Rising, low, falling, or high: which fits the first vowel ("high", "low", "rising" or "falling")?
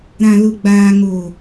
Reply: low